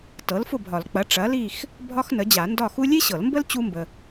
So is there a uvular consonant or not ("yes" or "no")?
no